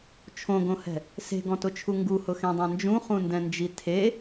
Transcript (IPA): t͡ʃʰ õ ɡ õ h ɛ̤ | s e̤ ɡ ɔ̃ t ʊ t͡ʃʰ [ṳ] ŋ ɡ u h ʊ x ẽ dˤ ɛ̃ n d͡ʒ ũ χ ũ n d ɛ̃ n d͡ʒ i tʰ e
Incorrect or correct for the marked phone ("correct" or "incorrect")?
incorrect